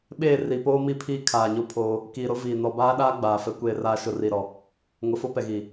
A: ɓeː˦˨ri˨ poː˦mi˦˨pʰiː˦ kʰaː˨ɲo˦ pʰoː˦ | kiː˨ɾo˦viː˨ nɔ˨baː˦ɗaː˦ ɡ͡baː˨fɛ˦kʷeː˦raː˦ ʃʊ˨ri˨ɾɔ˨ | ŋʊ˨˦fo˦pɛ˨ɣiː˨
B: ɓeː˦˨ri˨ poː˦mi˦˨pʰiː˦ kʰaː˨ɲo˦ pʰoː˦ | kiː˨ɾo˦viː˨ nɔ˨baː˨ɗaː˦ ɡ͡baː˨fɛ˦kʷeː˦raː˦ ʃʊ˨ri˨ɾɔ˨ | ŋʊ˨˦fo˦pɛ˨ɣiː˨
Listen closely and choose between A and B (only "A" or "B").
A